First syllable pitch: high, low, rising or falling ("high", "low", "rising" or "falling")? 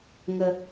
high